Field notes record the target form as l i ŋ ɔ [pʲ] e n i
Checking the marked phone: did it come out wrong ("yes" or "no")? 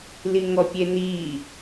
no